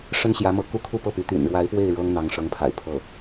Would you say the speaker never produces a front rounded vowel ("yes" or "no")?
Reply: no